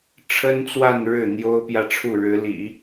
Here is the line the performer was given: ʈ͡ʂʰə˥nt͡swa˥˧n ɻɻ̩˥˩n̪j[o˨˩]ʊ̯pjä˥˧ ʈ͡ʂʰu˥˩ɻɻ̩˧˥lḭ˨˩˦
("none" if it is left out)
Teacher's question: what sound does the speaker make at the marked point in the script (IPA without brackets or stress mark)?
o˥